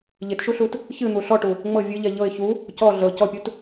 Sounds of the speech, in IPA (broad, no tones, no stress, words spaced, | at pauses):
ʎɪtʃuɬut | çɨn̪u ɬɔʈu | ŋ͡mɤ vʲɨʎɛ ʎɤɪ̯ çu | cɔ ɮɤ cɔpʲut